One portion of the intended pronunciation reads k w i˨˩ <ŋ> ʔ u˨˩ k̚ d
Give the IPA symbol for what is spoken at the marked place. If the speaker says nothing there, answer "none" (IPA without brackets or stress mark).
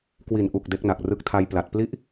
n